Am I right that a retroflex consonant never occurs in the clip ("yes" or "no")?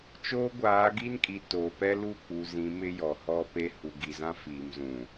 yes